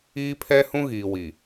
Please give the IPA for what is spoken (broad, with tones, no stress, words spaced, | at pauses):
iː˦pʰɛ˦hũ˦ ɣiː˨wi˨